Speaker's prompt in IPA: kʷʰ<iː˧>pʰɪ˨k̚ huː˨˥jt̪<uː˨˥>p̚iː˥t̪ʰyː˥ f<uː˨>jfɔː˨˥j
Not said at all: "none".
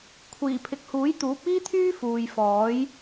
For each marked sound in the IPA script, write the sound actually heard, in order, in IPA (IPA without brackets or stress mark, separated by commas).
iː˨˩, uː˨˥, uː˨